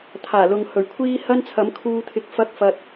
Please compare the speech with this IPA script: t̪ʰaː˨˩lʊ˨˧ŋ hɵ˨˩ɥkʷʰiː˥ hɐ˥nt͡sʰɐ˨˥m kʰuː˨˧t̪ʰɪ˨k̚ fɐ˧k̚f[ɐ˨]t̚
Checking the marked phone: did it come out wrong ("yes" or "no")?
no